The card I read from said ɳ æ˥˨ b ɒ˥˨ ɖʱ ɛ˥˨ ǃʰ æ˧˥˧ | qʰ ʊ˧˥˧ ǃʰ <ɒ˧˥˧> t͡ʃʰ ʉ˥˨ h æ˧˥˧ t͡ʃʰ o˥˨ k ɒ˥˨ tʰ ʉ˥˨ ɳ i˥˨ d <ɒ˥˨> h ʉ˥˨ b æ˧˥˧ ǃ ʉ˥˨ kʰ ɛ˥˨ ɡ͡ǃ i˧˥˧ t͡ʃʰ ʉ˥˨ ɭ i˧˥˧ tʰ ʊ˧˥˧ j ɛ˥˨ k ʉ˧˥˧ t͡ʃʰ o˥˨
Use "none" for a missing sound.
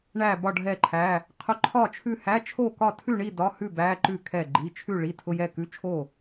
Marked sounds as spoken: ɒ˥˨, ɒ˧˥˧

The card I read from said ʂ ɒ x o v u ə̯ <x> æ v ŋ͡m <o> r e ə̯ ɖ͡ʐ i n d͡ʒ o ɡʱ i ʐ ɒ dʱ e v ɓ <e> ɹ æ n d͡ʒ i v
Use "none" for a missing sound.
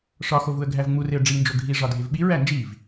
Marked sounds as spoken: ɡʱ, u, i

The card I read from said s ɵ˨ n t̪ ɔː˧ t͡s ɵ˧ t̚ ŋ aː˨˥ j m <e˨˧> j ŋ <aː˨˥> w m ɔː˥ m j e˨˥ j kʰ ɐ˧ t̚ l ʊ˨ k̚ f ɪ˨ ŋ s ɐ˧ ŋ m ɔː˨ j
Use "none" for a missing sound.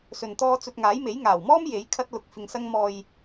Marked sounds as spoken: e˨˥, aː˨˩

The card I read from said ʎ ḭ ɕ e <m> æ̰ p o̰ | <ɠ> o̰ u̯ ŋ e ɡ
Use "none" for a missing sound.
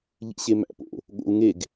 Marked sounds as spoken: m, ɠ

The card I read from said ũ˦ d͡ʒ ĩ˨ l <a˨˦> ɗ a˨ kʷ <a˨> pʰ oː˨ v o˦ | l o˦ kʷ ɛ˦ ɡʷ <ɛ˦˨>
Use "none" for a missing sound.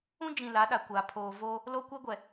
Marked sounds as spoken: a˨˦, a˨, ɛ˨

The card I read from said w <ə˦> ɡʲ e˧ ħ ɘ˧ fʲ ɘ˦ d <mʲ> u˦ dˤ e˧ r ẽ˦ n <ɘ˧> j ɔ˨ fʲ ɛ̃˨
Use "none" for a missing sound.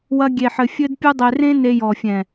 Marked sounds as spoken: ɐ˦, pʲ, e˧

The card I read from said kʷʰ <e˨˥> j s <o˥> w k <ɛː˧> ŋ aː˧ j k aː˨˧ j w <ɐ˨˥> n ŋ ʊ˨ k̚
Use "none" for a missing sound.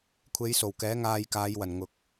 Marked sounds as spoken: e˨˧, o˨˩, ɛː˨˥, ɐ˨˩

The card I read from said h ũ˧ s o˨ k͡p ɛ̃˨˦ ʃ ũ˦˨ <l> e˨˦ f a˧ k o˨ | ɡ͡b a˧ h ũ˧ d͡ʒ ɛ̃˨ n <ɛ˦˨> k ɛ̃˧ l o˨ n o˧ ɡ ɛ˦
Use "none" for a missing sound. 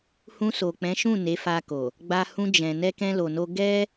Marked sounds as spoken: n, ɛ˧

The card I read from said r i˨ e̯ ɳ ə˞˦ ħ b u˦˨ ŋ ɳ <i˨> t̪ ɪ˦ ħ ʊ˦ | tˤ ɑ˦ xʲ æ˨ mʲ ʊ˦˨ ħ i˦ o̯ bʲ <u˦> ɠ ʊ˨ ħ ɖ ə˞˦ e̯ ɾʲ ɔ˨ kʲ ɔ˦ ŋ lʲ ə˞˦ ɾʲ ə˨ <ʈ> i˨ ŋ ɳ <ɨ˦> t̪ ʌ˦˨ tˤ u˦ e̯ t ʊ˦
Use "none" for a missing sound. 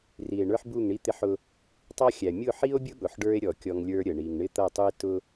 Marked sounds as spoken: i˦, ʊ˦, ɳ, ɪ˦

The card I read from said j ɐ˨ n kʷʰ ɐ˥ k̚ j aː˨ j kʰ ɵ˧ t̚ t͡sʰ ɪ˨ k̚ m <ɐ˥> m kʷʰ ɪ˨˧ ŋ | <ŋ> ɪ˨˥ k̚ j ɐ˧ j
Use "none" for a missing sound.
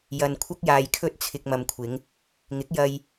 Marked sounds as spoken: ɐ˨, ŋ

